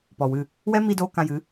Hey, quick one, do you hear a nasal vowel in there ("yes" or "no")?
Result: yes